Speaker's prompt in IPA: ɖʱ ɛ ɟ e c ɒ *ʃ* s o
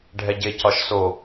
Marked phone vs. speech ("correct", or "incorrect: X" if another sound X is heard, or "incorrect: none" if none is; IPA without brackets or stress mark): correct